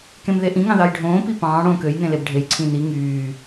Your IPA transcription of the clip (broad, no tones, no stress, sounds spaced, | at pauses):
k ẽ m ð e ʔ ĩ ŋ ɑ̃ ð ɑ j ɖʱ õː p i p ɑ̃ː ɽ õː k ø j n ẽ l e b ɖʱ e j ǀʰ ĩ n i ŋ yː